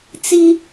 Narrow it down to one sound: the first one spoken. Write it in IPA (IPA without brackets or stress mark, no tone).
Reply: t͡s